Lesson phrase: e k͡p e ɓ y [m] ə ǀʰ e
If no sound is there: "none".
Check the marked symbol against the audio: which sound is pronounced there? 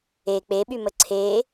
m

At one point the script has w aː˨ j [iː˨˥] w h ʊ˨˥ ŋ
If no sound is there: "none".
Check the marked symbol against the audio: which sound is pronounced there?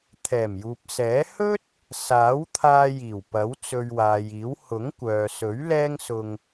iː˨˥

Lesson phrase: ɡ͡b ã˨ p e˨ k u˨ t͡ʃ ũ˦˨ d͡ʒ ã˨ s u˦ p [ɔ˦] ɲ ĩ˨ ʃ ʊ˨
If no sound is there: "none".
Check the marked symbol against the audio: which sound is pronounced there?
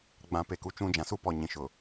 ɔ˨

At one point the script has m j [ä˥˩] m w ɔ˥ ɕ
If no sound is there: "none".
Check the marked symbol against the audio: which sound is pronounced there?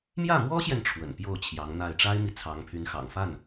ä˥˩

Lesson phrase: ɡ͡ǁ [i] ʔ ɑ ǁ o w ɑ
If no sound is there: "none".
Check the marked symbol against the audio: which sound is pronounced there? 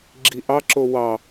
i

